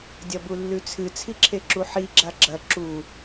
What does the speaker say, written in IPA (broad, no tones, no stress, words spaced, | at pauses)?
dʲɐbulːʉt͡sʰɨ t͡sʰiǁʰeǁuħi ɡ͡ǁaɡ͡ǁɐ ǁu